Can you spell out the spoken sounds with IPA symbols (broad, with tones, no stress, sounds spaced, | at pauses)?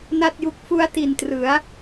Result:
n a˥˩ t̚ j u˦˥ k̚ f u˦˥ a̯ t i˨˩ n t r ɯ˩˦ a̯